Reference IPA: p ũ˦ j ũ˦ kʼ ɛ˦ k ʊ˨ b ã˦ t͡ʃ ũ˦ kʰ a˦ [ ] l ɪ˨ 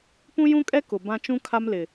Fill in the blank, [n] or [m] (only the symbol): m